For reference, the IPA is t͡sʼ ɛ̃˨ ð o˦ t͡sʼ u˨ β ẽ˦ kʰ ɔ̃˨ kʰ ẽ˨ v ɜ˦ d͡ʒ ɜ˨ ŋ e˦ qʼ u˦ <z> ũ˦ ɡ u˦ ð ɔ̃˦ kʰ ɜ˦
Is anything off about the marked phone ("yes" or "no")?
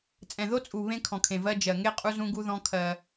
no